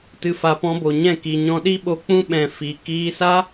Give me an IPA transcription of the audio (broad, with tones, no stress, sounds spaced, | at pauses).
t ɨ˧ f a˧ p ɔ̃˧ b o˨ ɲ ɛ̃˦˨ k i˨ ɲ ɔ̃˧ ɗ i˦ ɓ o˧ k͡p ũ˦ ɓ ɛ̃˨ f i˨ k iː˧ s a˦